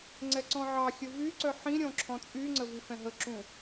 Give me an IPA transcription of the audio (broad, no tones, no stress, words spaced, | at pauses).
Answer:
ŋ͡ǀɛǀɔ̃ʕɑxʲə vyǀœ ħĩɾʲɔ̃ ǁʰɔ̃t͡sʼyŋ͡ǀə vifɛ̃ɦəǁũ